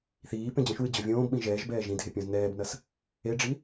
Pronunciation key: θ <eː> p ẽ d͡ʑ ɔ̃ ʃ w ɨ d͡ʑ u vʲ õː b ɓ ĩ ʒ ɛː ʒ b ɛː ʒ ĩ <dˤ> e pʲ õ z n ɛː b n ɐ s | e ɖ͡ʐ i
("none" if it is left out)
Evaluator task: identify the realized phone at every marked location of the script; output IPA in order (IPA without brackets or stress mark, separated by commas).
iː, dʱ